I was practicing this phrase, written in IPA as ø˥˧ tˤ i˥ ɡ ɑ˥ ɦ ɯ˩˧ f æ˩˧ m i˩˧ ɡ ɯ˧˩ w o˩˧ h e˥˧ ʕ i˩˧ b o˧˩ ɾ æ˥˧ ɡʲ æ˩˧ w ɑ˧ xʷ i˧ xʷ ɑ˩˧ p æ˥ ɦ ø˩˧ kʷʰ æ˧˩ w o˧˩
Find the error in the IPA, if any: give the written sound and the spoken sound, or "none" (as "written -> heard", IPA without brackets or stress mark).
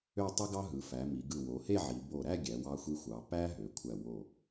none